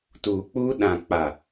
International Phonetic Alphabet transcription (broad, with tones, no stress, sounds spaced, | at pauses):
t uː˨ k͡p u˦ ɗ ã˨ k͡p a˨